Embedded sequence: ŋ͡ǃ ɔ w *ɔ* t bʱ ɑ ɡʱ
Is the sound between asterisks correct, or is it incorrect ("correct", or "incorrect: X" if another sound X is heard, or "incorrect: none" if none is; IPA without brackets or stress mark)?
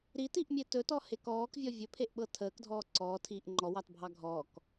incorrect: ɑ